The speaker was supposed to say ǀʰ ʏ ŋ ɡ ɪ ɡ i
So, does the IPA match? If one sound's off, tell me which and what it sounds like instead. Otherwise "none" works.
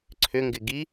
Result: none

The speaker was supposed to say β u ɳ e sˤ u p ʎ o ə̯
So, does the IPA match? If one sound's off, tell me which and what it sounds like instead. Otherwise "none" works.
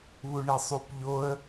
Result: none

